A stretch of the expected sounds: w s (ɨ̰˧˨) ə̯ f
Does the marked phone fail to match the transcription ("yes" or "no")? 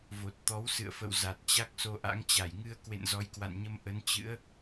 no